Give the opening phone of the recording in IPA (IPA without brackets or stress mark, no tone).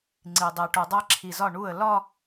ŋ͡ǀ